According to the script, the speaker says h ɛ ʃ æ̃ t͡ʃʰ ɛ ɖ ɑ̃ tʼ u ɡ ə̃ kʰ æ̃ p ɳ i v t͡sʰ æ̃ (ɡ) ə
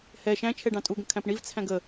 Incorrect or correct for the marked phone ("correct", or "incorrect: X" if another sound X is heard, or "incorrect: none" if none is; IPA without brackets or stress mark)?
correct